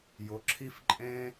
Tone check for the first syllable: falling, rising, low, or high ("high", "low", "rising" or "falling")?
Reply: rising